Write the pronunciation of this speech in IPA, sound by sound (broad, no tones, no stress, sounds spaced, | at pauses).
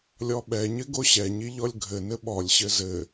lʲ ɔ ɓ ɛ ɲ ɘ ɡ o ɕ ɛ ɲ i ʎ ɔ lʲ ɡʱ ɘ n ɘ ɓ ɔ lʲ ɕ ɘ z ɘ